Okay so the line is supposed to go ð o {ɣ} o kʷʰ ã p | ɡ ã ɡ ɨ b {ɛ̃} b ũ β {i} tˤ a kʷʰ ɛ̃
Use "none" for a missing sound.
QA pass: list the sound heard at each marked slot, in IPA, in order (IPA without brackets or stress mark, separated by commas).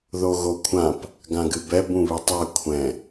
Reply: ɣ, ɛ, i